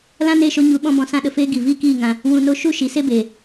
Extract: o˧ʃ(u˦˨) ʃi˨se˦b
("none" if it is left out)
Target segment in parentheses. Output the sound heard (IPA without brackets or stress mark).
u˦˨